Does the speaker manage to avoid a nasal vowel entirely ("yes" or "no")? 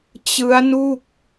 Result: yes